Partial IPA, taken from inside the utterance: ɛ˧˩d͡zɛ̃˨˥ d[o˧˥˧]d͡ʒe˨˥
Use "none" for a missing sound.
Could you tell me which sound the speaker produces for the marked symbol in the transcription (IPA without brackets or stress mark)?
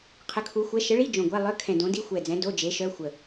o˧˥˧